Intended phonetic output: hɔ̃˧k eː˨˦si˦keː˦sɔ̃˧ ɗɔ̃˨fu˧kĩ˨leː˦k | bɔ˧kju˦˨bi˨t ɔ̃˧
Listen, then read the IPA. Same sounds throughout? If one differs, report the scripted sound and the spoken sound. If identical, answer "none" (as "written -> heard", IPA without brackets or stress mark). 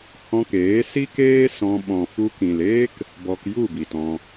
ɗ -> ɓ